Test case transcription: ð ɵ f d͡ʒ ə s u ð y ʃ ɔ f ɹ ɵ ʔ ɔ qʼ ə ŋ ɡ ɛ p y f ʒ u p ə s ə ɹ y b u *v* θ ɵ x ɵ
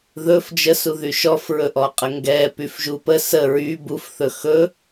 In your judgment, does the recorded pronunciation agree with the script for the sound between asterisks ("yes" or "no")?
no